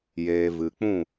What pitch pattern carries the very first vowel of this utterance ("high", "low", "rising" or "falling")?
low